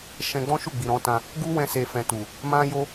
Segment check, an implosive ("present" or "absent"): absent